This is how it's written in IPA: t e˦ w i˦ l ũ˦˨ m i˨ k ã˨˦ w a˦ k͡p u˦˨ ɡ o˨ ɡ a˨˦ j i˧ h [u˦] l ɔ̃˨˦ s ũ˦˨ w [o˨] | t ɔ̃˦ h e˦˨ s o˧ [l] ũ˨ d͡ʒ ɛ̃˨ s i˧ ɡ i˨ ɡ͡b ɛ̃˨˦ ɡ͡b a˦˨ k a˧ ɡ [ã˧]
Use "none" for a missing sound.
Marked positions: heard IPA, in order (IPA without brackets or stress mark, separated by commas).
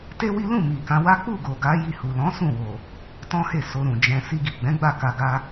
u˨, o˨, ɾ, a˧